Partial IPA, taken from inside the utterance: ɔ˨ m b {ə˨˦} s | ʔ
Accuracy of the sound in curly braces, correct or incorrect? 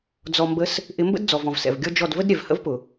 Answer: correct